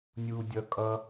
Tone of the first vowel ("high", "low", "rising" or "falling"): high